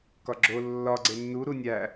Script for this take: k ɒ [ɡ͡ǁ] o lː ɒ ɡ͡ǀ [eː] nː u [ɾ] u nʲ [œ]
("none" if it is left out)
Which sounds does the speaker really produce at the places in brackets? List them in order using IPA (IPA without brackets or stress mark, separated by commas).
ɡ͡ǁ, e, ɾ, æ